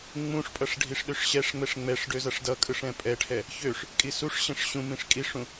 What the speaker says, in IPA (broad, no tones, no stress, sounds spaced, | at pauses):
ŋ͡m ũ ʂ pʼ ʌ ʂ ɖʱ i ʂ ɗ ø ʂ ɕ ɛ ʂ ŋ͡m ɛ ʂ ŋ͡m ɛ ʂ ɖ ø z ʌ ʂ d ʌ kʼ ɯ ʂ ɛ̃ pʼ ɛ ʈʰ ɛ | ç ø ʂ | kʼ i s u ʂ ɕ ɛ̃ ʂ ɕ ũ m ĩ ʂ kʼ i ʂ ũ